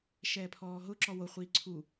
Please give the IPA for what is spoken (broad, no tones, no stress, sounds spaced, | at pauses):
ʃ ɛː pʰ ɔː ɦ ʊ ǁ ɔ w o χʷ iː ǀʰ u